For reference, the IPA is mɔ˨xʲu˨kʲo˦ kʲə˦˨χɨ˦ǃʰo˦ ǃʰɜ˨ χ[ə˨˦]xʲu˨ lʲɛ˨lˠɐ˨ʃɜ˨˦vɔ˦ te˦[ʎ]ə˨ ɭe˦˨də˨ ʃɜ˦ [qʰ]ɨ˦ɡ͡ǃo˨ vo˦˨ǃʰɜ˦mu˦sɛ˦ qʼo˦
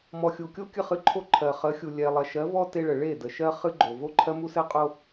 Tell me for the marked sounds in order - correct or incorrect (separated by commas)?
correct, incorrect, incorrect